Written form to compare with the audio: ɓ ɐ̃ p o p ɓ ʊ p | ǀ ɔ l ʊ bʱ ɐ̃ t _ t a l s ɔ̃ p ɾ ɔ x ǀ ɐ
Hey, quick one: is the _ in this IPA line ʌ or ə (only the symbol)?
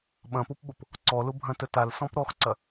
ə